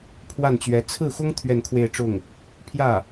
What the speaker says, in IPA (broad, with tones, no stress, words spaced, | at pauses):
pʰwa˥˩nt͡ɕɥɛ˧˥ t͡sʰɹ̩˥˩xʊ˥ŋ t̪ʰɥɛ˥˧nkʰwe˥˧ɪ̯ ʈ͡ʂʊ˥˩ŋ | pʰjä˥˩